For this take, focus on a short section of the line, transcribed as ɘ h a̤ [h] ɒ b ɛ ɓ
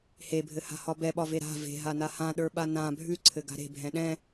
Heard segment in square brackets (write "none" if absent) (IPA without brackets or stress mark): h